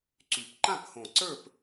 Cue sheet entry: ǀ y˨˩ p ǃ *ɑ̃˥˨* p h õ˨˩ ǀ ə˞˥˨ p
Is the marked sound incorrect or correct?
incorrect